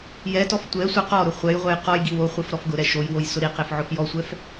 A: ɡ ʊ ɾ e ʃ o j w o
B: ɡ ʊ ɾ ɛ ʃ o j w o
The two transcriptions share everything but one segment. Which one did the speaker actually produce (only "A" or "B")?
B